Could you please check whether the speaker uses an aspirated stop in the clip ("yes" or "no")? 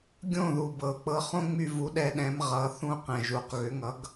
no